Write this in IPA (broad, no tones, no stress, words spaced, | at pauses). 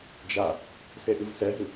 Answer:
d͡ʒa | seʔɨvsɛɦɨ